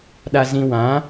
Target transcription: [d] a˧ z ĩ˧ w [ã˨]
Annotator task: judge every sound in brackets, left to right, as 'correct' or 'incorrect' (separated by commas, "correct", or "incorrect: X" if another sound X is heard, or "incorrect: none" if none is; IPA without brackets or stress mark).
incorrect: ɗ, incorrect: ã˨˦